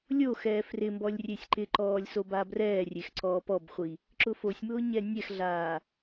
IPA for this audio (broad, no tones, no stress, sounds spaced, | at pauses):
lʲ o x ɛː f r ɪ m b ɔ lʲ rʲ e sʲ ǃ ɪ ǃ ɔː lʲ s o b a b r ɛː rʲ e x ǀ ɔː p ɔ b χʷ i | ǁ ʊ f o sʲ m ʊː ɲ ɛ nʲ ɛ x ɮ aː